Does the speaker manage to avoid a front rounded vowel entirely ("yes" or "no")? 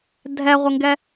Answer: yes